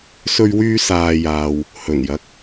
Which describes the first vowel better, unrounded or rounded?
rounded